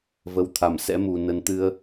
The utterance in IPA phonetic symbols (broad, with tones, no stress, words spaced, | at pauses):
və˨˦wt̪ʰa˧˩msɛ̰˧˥mu˨˩ nə˨˦nt̪ɨ˧ə̯